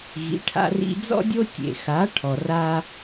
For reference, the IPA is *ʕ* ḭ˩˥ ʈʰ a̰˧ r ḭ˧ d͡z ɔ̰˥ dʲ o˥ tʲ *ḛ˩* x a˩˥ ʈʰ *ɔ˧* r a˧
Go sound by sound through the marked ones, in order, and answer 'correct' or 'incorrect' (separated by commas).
incorrect, correct, incorrect